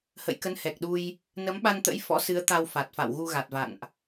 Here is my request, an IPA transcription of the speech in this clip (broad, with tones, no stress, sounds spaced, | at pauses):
h ə̰˧˨ j k ə˨˦ n h ɛ˨˩ k̚ ɗ u˧ j | n ə˨˦ m ɓ a˧ n t̪ ə̰˧˥ j f ɔ̰˧˥ s ɨ˨˦ ə̯ t̪ a˧ w f a˨˩ t̚ f a̰˧˨ w ɣ u˧ ɣ a˨˩ t̚ v a̰˧˨ n ʔ